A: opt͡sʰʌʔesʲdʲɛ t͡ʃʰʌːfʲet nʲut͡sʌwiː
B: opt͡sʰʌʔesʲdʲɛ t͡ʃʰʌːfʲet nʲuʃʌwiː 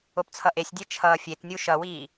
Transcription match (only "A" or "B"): B